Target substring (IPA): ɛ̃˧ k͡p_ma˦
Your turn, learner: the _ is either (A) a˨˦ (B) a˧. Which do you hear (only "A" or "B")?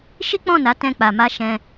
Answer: B